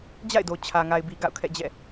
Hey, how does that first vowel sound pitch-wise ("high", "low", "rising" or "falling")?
falling